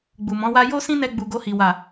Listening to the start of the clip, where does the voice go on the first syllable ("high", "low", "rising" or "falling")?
low